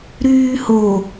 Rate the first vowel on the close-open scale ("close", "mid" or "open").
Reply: close